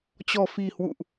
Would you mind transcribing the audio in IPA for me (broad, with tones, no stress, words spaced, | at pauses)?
t͡ɕɔ̤˨˩fi̤˨˩ hwṵ˧˨ʔ